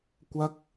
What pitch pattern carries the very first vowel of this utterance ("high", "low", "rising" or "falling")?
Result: high